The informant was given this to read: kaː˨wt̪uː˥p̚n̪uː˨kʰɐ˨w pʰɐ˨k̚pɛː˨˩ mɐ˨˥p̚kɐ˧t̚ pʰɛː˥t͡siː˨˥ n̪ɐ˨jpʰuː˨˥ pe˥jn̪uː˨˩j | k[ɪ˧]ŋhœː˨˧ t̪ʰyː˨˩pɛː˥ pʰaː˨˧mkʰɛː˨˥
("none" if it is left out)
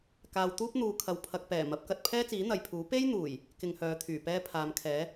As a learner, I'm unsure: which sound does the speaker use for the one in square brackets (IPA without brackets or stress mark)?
ɪ˧